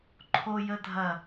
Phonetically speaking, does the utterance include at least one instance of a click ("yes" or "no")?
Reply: yes